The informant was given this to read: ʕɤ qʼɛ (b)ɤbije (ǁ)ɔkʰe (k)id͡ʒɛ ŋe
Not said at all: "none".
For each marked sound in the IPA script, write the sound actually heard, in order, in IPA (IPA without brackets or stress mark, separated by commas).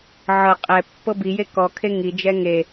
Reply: pː, k, ŋ